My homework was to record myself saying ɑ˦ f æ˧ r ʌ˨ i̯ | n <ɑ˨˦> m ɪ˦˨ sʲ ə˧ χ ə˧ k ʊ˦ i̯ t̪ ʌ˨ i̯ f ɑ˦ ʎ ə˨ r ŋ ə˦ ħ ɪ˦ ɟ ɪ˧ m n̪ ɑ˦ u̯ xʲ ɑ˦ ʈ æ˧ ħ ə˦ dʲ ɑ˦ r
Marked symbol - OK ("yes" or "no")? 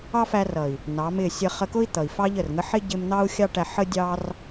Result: yes